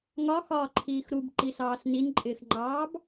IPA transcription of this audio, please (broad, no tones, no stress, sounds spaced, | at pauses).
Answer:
ŋ ɒ x ɒː ǃʰ iː x ɾ u b ǃ i s ɑː s n i n ǃʼ ɪː x ŋ͡ǃ ɑː b